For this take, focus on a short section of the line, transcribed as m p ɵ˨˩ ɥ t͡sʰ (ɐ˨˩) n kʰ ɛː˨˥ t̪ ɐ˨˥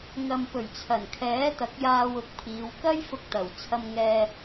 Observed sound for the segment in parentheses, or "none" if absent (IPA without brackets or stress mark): ɐ˨˩